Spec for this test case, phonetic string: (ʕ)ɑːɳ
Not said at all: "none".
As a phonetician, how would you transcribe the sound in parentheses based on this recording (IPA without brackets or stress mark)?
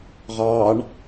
ʁ